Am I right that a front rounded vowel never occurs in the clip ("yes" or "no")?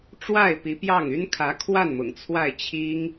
no